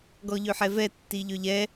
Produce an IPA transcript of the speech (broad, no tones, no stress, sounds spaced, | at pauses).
ɡ ɔ ʎ ø ħ ɛ v ɛ tː i ʎ ø ʎ ɛ